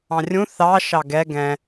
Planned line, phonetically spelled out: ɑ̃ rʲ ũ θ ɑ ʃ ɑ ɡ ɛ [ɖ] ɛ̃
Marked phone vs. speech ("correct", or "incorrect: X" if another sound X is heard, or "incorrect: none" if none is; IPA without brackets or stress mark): incorrect: ɡ